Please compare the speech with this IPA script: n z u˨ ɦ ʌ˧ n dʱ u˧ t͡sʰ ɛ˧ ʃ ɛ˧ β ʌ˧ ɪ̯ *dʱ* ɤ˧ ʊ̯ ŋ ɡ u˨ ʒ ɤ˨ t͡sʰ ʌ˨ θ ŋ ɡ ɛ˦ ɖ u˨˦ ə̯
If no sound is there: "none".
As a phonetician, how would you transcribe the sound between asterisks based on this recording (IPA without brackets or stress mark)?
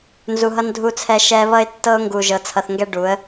tː